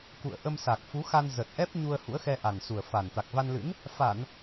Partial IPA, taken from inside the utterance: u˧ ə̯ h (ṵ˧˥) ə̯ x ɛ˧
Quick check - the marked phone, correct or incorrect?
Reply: correct